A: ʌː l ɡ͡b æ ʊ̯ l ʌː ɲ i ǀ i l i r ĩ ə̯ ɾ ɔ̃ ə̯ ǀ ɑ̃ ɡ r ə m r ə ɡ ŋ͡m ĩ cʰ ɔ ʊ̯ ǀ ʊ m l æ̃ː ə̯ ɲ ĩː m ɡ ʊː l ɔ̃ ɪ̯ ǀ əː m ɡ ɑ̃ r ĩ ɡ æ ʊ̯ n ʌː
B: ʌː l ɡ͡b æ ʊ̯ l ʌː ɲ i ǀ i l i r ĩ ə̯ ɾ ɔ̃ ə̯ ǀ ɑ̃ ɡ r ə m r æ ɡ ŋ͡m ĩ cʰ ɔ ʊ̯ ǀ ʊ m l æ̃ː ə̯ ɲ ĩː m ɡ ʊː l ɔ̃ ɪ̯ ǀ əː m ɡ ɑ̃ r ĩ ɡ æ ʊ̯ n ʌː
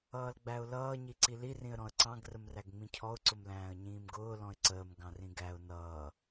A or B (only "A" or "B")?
B